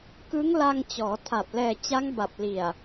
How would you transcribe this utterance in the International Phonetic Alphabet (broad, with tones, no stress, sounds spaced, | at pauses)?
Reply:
k ɯ˦˥ ŋ l a˧ ŋ t͡ɕ ɔː˩˦ tʰ a˨˩ p̚ l ɛː˨˩ t͡ɕ a˦˥ ŋ b a˨˩ p̚ l i˨˩ a̯